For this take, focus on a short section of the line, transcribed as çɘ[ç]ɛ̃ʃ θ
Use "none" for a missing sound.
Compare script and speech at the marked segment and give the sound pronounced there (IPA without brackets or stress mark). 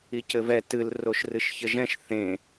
ʒ